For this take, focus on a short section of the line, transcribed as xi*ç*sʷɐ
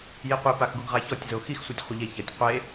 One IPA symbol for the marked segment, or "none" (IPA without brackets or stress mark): x